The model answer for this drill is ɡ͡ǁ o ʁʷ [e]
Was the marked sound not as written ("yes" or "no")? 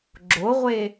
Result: no